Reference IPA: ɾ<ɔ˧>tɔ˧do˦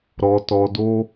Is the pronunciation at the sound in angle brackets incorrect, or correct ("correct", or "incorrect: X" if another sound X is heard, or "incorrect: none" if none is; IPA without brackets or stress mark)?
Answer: correct